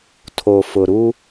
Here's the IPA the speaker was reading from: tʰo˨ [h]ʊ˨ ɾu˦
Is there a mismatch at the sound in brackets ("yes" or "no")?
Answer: yes